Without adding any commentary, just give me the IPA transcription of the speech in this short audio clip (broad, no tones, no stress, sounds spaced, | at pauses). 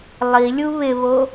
lˠ i lʲ u β ɪ β o